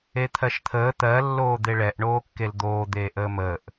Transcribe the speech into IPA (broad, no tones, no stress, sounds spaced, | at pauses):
e t̪ʰ ɜ ʃ t̪ʰ əː t̪ ɜ lː oː d̪ e ɭ ɛ ʔ ɳ oː kː e l d̪ oː d̪ eː ʔ əː m əː ʔ